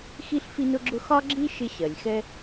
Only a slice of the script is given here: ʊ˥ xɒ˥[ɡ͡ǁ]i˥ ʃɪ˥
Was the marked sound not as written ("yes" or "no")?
no